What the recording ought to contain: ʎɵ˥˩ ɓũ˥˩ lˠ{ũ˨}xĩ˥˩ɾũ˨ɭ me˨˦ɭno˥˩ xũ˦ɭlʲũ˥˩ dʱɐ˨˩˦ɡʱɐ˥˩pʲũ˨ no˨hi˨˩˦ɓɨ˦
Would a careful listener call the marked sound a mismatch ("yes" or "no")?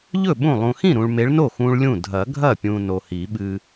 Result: no